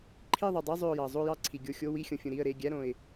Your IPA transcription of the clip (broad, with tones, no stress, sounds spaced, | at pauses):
ǃʰ i˥˨ ðˤ o˩ dˤ i˧˥˧ zˤ ø˧˩ ʊ̯ j ɑ˩ zˤ o˥˨ j ɑ˥˨ ǀʰ i˩ ɡʲ o˧˩ xʲ o˧˥˧ w i˧˥˧ xʲ õ˩ fʲ ũ˩ ɾ i˩˧˩ ə̯ ɾ e˩˧˩ ɡʲ æ˧˥˧ ɾ õ˩ ɪ̯